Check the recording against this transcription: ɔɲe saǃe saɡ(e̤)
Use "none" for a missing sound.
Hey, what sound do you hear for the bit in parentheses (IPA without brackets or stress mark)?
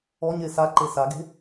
e̤